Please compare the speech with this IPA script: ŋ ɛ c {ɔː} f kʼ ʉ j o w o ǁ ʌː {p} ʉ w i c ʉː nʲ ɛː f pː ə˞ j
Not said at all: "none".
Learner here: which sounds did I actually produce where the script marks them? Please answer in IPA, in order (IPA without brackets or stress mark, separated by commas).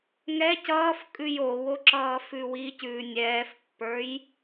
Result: ʌː, f